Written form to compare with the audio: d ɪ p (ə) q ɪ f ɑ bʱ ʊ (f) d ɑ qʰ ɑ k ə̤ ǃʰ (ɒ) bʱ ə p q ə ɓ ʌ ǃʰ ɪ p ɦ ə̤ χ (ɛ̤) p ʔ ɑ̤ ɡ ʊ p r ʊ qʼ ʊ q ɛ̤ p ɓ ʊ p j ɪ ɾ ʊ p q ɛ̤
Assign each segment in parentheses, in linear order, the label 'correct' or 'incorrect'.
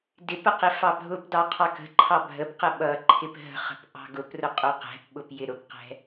correct, incorrect, incorrect, incorrect

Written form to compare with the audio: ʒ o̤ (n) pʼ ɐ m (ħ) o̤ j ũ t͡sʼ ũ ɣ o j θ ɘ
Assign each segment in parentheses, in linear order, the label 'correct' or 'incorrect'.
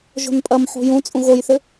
correct, correct

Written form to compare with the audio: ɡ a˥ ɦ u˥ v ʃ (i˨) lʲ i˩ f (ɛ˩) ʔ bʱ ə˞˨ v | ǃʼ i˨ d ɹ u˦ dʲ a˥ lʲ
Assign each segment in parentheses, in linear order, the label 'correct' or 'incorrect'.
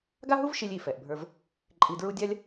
correct, correct

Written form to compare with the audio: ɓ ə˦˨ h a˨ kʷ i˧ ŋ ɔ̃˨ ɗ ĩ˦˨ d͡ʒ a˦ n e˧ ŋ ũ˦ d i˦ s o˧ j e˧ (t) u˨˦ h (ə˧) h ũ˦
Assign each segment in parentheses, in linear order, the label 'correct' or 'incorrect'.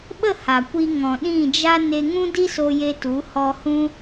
correct, incorrect

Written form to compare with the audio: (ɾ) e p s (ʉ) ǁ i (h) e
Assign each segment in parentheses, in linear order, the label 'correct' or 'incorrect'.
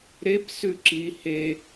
correct, correct, correct

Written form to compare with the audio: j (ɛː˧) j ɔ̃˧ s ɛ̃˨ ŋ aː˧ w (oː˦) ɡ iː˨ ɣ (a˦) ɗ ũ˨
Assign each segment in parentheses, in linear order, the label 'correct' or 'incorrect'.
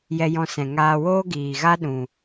incorrect, correct, correct

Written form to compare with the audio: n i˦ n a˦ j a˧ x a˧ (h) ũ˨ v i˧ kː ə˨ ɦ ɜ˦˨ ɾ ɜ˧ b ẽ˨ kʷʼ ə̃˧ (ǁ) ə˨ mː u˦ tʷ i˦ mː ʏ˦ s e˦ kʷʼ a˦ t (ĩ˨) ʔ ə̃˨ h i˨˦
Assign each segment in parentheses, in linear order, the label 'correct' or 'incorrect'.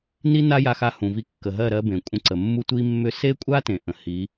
correct, incorrect, incorrect

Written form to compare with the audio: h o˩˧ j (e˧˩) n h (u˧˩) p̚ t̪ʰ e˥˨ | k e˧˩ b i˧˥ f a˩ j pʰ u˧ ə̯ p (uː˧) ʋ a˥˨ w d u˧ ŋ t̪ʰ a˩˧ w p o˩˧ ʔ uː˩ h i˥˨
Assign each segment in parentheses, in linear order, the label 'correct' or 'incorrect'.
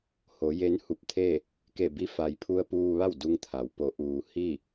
incorrect, correct, correct

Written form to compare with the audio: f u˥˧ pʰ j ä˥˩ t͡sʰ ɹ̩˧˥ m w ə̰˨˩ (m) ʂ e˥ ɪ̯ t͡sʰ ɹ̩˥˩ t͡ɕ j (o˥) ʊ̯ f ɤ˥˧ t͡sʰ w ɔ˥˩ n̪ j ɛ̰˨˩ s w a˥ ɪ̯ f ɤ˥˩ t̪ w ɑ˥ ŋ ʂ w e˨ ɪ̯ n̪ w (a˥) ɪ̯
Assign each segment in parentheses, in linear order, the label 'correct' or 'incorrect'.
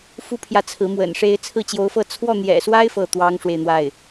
incorrect, incorrect, incorrect

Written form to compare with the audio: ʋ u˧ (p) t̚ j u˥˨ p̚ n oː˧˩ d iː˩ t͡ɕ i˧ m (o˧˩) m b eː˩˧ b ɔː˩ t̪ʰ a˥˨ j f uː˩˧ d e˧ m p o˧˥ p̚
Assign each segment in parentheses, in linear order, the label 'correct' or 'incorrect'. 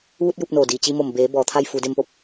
incorrect, correct

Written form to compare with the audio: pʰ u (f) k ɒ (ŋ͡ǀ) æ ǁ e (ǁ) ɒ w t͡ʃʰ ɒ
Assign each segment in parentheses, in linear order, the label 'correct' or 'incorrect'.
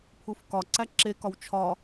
correct, incorrect, incorrect

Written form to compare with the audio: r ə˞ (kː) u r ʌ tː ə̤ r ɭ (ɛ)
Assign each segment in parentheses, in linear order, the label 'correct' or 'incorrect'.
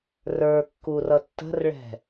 correct, incorrect

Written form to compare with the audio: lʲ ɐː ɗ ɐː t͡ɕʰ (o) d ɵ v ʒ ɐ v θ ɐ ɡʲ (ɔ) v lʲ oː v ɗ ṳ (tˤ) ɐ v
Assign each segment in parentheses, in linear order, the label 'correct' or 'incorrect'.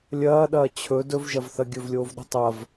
incorrect, incorrect, correct

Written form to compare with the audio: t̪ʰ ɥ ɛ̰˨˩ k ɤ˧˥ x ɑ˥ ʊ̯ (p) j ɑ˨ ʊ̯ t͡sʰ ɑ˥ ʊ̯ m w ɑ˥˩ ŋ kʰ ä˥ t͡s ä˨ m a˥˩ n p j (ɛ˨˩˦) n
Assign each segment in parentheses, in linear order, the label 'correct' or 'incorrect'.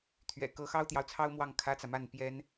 incorrect, incorrect

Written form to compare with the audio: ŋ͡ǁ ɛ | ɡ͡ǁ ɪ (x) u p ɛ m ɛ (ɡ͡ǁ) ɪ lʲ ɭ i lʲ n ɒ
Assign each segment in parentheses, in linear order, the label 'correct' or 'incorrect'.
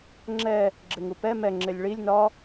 incorrect, incorrect

